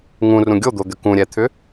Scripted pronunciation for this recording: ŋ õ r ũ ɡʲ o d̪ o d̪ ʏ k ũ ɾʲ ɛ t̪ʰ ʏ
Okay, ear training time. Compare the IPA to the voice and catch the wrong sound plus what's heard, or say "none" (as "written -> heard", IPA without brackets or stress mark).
õ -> ũ